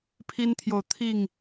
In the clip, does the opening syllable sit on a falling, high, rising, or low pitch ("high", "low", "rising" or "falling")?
high